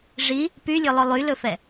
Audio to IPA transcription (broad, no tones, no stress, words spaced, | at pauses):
ʐi | pylʲɵlˠɵ lˠylɵfɛ